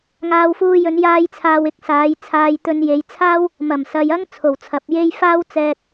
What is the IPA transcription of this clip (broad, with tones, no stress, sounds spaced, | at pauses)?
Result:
ŋ aː˧ w f uː˧ j ɵ˨˧ n j aː˥ j t͡sʰ aː˧ w ɪ˨˥ k̚ s aː˨˧ j t͡sʰ aː˧ j t̪ ɵ˧ n j e˨˧ j t͡sʰ aː˥ w | m ɐ˨˩ m s ɐ˨ j ɐ˥ ŋ t͡sʰ o˨˩ w t͡sʰ ɐ˨ p̚ j e˥ j f aː˥ w t͡s ɛː˧ t̚